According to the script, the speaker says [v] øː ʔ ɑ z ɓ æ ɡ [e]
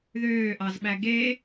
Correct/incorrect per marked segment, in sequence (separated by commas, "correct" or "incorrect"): incorrect, correct